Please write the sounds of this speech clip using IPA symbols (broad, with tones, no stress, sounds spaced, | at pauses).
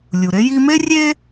lʲ u˩ ɾ e˥ j i˧ m e˥ rʲ e˥